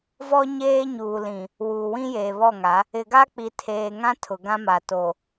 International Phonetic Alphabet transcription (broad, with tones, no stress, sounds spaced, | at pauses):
v ɔ˦ ɲ eː˦ ɲ uː˨ l ĩ˨ | w uː˨ w ĩ˦ j eː˨ β ɔ˦˨ ŋ a˨˦ | ɪ˨ ɡ a˦ k͡p i˨ tʰ eː˨ ŋ ã˦ tʰ ʊ˨ ɡ ã˦ m a˨ t o˨